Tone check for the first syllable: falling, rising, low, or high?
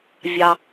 high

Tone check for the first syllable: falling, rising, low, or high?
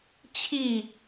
falling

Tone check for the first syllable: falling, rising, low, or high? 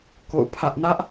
falling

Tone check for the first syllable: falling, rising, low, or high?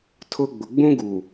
high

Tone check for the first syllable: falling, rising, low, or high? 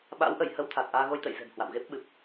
rising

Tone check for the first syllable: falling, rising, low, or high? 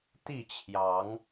falling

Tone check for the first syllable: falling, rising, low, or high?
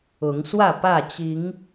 rising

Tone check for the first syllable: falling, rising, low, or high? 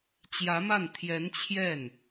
rising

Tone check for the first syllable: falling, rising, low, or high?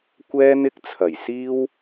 high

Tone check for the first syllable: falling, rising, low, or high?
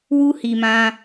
high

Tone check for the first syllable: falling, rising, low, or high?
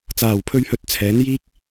low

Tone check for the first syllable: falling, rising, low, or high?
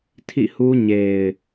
falling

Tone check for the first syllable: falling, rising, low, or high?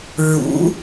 rising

